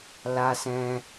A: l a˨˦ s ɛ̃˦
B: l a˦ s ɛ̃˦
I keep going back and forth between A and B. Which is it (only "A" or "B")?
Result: B